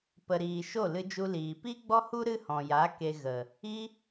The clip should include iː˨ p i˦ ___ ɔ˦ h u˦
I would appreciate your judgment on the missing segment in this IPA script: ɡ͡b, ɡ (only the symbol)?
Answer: ɡ͡b